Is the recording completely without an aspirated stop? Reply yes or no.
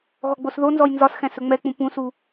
yes